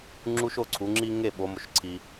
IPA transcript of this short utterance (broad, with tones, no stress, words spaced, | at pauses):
ŋ͡ǁu˦ʃo˥˨ǀʰu˩˧ŋ͡ǁi˦ ŋe˥˨ ɓo˩˧mo˩ʃǀʰi˩